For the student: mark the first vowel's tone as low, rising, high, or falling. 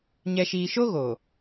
low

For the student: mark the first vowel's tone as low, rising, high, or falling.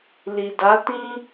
low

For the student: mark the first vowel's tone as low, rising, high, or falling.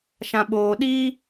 low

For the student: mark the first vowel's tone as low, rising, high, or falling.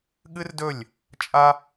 high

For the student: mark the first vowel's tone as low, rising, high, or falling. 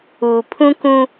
low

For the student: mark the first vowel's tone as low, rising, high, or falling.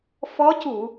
rising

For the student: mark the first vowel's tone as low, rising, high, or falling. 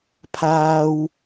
high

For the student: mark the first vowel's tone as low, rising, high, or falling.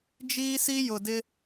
high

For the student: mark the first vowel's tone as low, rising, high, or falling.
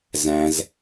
low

